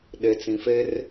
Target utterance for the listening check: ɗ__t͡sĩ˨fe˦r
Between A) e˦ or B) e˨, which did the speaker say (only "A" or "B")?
B